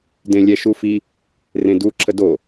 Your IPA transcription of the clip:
d ẽ lʲ ɛ ʃ u f i | r ẽ d u ǁʰ ə d o

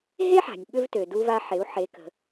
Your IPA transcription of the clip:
ɦ e˥ ħ a̤˩ nʲ ɓ ʏ˧ v t ø˩ d u˧ v a˧ ħ e˩˧ u̯ ħ e˩˧ k ə̤˩

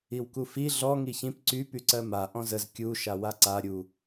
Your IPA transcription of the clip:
i w k u f i ɮ ɔ ŋ i ç ĩ p ǀ y p y ǀ ɜ m a ʔ ɔ̃ z ə z kʲ u ʃ a w a ǀ a ɾʲ u

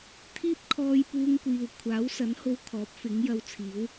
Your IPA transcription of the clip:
t̪ʰ iː˥ p̚ kʰ ɔː˧ j p uː˧ ŋ kʷ iː˨ w kʷʰ aː˨˥ w s ɐ˨˥ n h o˧ w kʰ ɔː˨˥ p̚ f ɪ˨˥ ŋ j ɐ˧ w t͡sʰ iː˨˥ w

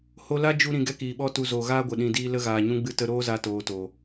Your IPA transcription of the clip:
h o˧ l a˦ d͡ʒ u˧ ɾ ĩ˨ ɡ ɛ˦ k iː˨ ɓ ɔ˦ t u˧ z oː˨ ɣ aː˦ ɡʷ ə˨ ɗ ĩ˨ d iː˧ l ə˧ ɣ aː˨ ɲ ũ˧ ɡ͡b ɨ˧ t ə˧ ɾ oː˦ z a˧ t oː˨ t o˨

